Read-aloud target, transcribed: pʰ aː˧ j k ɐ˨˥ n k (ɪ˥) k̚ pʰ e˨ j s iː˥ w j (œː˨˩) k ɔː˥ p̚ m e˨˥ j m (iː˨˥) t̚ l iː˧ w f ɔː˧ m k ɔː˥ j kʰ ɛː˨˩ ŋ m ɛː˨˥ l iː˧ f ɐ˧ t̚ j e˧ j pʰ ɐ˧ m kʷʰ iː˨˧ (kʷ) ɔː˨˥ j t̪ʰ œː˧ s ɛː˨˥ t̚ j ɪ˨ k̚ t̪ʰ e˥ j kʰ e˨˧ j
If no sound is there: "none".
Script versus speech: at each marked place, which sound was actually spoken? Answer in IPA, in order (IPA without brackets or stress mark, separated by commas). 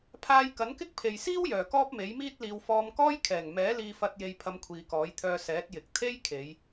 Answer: ɪ˥, œː˨˩, iː˥, k